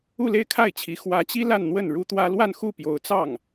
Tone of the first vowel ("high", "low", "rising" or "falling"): falling